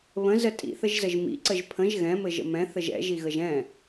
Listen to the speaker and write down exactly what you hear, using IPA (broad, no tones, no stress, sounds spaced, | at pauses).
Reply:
β ə̃ z ə tʼ ḭ θ ə ʒ z ə ʒ m ḭ ǀ ə ʒ pʰ ə̃ ʒ ɣ ɛ̃ m ɘ ʒ ə̰ m ɛ̃ θ ə ʒ ɛ̰ ʒ i ɣ ə ʒ ɛ̃